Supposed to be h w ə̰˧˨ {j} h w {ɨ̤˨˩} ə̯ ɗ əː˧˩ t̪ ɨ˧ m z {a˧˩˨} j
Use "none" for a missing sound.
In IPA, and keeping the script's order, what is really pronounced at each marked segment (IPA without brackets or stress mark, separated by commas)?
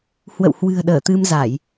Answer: w, ɨ̤˨˩, a˧˩˨